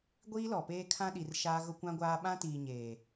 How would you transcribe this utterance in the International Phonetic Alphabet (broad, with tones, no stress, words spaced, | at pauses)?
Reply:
ɡʷiː˦lɔ˨peː˦ kʰã˦ɗi˨rʃaː˦ ɣʊ˦kʷã˦ɡʷaː˦ ɓã˦tiː˨ɲeː˨